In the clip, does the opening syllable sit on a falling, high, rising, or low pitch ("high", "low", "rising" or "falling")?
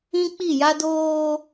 high